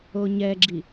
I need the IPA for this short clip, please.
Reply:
o ɲ ɛ ɡ͡ǁ i

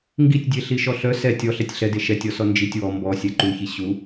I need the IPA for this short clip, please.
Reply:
ŋ ɡ i tʲ dʲ e ɬ i ʃ ɔ ɬ œ s ɛ tʲ ɔ ɬ ɛ tʲ ɬ ɛ d e ʃ ɛ tʲ ɔ s ɔ n d͡ʒ i tʲ w ɔ m b ɔ sʲ ɛ ǃ u ç i ɕ u

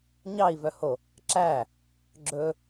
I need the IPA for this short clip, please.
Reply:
ɲ ɑ i̯ v œ h o | ǁ æ | ɡ͡ǁ ɵ

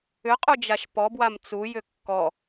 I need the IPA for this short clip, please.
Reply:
ʏ qʼ u d͡ʒ a ʃ p ɔ b w a m t͡s u j ʏ kː ɔ

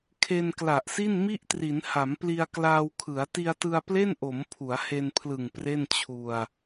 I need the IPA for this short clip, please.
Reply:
kʰ e˧ n k l a˨˩ ʔ s i˥˩ n m i˥˩ ʔ t r i˩˦ n h a˩˦ m p l i˧ a̯ k l aː˧ w kʰ ɯ˩˦ a̯ t i˧ a̯ t ɯ˧ a̯ p l e˥˩ n ʔ o˩˦ m pʰ u˩˦ a̯ h e˧ n pʰ l ɯ˨˩ ŋ p r e˥˩ n t͡ɕʰ u˧ a̯

